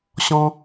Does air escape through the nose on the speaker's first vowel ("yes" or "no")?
yes